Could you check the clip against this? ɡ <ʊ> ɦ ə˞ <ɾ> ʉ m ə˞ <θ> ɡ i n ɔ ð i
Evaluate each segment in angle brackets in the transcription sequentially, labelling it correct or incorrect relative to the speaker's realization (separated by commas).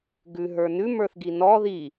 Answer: incorrect, incorrect, correct